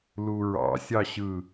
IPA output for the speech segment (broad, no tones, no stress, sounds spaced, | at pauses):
l u ɹ ɑ̰ sʲ ɑ ɕ ɯ